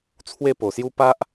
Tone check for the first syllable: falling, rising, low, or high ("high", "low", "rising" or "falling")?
falling